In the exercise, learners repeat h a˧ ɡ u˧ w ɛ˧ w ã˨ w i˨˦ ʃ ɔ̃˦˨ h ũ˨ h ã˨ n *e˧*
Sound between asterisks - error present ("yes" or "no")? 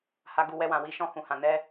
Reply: yes